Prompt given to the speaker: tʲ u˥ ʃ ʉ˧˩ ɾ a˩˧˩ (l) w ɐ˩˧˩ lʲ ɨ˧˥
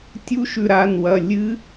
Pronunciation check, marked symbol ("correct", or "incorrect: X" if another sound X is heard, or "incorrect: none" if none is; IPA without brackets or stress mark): incorrect: n